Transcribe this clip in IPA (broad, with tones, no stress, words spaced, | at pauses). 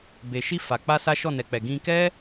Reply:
be˨ʃi˧ fa˨k͡pa˧ sa˦ʃɔ˦˨ nɛ˨k͡pɛ˨ɡĩ˧ kɛ˦